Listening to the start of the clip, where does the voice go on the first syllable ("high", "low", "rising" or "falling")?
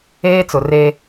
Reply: high